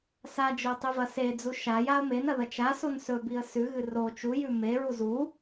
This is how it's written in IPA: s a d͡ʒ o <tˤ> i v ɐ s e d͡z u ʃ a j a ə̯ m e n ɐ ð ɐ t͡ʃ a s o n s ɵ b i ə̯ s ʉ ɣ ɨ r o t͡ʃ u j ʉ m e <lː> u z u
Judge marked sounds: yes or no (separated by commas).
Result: yes, no